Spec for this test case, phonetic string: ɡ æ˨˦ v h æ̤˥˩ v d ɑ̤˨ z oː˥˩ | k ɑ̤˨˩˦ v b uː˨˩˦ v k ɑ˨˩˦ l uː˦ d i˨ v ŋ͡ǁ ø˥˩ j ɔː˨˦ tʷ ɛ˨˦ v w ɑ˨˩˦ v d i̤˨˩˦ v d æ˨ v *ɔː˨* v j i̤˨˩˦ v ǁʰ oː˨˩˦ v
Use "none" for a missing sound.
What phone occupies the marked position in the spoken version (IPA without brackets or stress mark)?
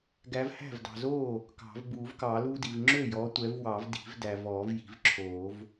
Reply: ɔː˨˩˦